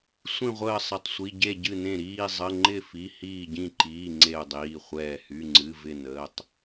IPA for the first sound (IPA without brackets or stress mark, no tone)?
sʷ